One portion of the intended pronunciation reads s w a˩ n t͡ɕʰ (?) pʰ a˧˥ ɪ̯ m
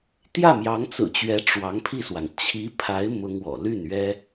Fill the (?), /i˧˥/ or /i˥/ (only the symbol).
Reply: i˧˥